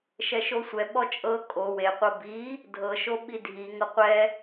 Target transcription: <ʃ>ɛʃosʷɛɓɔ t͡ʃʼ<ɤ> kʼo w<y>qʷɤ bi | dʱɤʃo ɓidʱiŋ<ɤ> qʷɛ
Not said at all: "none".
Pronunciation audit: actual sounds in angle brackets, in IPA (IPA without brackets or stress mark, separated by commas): ʃ, ɤ, e, ɤ